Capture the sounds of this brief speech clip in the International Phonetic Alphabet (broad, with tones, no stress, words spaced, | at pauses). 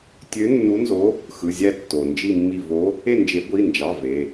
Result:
tʲø˧˥nːu˧˥nzo˧˥ | xɯ˩˧˩zʲæ˦˨tːo˩ nd͡ʒi˦˨mːi˦˨ vo˧˥ | e˦˨nd͡ʒe˨˩˦ɡʷi˩˧˩nd͡ʒɑ˩˧˩ ve˩˧˩